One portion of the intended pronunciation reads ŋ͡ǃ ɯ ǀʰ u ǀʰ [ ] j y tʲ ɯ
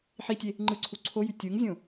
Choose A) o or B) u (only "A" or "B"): A